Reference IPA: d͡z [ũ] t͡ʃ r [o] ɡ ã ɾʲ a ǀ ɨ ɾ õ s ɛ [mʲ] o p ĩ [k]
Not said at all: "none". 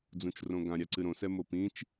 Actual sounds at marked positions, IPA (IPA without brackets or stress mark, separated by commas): ũ, õ, m, t͡ʃ